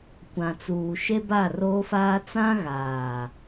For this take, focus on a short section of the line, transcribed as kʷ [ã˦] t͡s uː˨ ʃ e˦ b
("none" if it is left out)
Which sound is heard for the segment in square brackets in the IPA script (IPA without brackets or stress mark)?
ã˨